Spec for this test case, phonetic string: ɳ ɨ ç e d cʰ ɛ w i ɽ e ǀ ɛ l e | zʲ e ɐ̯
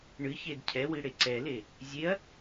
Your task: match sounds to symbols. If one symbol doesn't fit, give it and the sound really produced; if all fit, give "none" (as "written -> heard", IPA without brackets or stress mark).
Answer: none